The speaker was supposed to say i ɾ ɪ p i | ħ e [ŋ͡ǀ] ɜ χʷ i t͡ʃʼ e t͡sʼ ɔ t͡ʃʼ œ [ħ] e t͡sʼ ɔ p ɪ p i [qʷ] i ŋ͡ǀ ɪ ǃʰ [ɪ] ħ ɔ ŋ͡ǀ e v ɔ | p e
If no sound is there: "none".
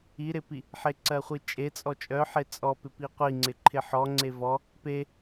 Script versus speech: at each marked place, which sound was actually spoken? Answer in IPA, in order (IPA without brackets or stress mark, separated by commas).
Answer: ǀ, ħ, qʷ, ɪ